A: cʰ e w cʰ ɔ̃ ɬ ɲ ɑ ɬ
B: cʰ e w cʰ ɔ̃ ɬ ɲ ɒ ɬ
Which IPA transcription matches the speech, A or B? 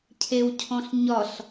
B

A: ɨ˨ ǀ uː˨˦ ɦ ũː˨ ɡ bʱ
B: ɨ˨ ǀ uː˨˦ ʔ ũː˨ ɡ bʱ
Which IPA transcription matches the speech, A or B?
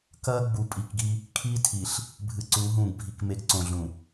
A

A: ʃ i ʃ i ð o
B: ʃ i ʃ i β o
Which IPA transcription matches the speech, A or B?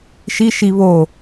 B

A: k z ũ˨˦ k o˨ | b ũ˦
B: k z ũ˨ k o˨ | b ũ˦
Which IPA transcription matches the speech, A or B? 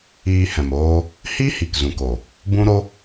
B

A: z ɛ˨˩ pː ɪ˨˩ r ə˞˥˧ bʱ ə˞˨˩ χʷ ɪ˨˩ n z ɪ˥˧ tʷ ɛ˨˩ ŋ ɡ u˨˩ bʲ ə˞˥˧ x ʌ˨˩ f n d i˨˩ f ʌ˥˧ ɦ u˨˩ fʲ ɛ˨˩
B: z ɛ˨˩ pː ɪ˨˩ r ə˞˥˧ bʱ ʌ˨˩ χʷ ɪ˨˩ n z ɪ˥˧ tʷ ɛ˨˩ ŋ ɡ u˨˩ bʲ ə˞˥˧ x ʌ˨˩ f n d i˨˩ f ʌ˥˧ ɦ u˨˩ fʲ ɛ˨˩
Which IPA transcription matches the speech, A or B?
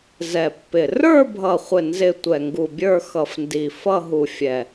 B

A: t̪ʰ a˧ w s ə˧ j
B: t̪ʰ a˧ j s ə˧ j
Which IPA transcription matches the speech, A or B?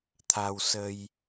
A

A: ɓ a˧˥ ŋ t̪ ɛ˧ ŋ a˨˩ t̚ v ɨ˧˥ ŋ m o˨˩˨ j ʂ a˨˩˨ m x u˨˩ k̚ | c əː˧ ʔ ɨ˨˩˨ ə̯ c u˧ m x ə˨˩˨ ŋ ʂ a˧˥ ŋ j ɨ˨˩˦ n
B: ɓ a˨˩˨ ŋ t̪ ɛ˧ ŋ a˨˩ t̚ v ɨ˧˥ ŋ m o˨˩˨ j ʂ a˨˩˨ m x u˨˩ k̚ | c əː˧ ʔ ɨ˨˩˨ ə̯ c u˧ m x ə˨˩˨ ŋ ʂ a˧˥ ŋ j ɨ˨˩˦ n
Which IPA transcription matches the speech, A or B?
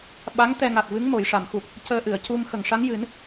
A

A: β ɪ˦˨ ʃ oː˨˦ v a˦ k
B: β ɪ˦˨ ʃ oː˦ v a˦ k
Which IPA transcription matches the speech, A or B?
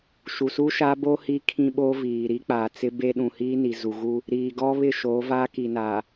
A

